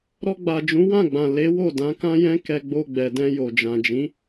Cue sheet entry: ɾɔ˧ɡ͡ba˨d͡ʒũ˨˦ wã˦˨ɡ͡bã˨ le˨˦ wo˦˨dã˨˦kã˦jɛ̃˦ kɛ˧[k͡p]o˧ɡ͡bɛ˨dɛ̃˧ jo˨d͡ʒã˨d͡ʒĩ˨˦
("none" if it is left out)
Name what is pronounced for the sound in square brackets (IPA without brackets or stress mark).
ɡ͡b